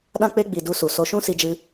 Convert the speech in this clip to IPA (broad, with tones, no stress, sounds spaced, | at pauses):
ɗ ã˧ k͡p e˧ ɡ͡b i˨ d u˧ s u˨ s o˧ ʃ ũ˦ s i˧ d͡ʒ ɨ˧